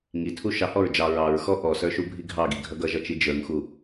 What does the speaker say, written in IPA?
ŋ i tʰ u ʃ ɑ h ɔ ɹ d͡ʒ ɑ ɹ ɑ ɹ x ɔ ʔ ɔ s ə˞ ʃ u bʱ i ɡʱ ɑ ɡ i ɡʱ ʌ ɡ ʌ ʒ ʌ t͡ʃ i d͡ʒ ə˞ ŋ x u

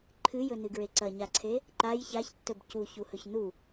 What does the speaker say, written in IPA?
ǃʰ ɨ j ɵ n ɨ ɡ ɹ e ǀ ɐ ɲ a ǀʰ e | ǃ a j ç a ç tː ɵ b c u ç u h ɵ ç n u

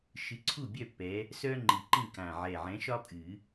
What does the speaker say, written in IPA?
ʃ ɨ˨˦ ǀʰ u˥˨ bʲ œ˥˨ pː ɛ˨˦ | s œ˥ ŋ͡ǃ i˨˩ ǃ ĩ˥˨ k ã˨˩ ʕ ɛ˨˩ ʕ ɛ̃˨˦ ʃ ɒ˥ pʼ ɨ˨˩˦

